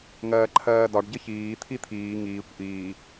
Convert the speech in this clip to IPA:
ŋ ɜː ǃʰ ɜː d ɒ ɖ ɟ ə ç iː t̪ʰ i t̪ʰ iː ŋ iː kʷ ʔ iː

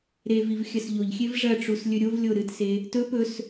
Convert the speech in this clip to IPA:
ɾ e v i v xʲ ɐ s ʎ o ʎ xʲ e v ʐ ɐ ʈ͡ʂ u s lʲ ɵ ɾʲ o v lʲ o ɾ ɨ t s e | t ɵ p ɵ s

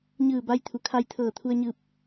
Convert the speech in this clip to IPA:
ɲ ɯː˧˩ b a˧ j t̪ʰ u˩˧ kʰ a˧ j t̪ʰ ɤː˧˩ t̪ʰ u˧ ə̯ ɲ ɯː˧ p̚

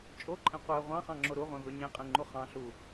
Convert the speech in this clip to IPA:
t͡ʃʼ o ǃʼ ẽ qʷ æ ʁʷ ɑ̃ χ ɑ̃ ŋ͡ǁ o ɾ u ʁʷ ẽ v ø ɲ ẽ qʼ ẽ ŋ͡ǃ u χ ɑ̃ ɬ u

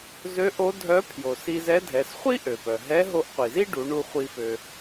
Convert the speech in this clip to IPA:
z ø˧˥ ʔ o˧˥ dʱ œ˧˥ pʰ j o˩ s i˧ z ɛ˧˥ dʱ ɛ˩˧ s χʷ i˥ ʔ ø˩ p œ˩ ɦ ɛ˧˥ ɦ o˧ ʔ qʷ i˩ z i˥ ɖ u˩˧ ɳ u˧ χʷ i˧ f ø˧

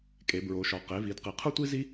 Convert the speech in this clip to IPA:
kʼ e˩˧ b ɹ o˩˧ ʃ ɒ˩˧ q e˩˧ v i˩˧ d q i˩˧ qʰ u˥ tʷ i˥ z i˥

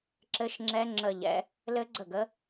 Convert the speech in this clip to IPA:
ǁ ɘ˦˥ ʃ ŋ͡ǁ ɛ˦˥ ŋ͡ǁ ə˥˧ ʎ ɛ̰˦˥ | l ɘ˦˥ ɡ͡ǀ ə˥˩ ɡ ə˦˥

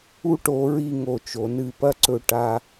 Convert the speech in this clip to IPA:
u˧ ʈ o˩˧ ɹ i˥˧ ŋ o˧˩ t͡ʃ o˩˧ n ɨ˧˩ p ɐ˥ ǀ ɵ˧ ʈ a˧

